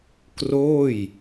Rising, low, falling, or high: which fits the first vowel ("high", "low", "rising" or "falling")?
falling